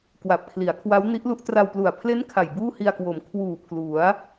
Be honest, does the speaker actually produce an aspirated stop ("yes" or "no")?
yes